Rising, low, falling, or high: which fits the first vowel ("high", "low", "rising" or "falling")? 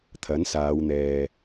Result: rising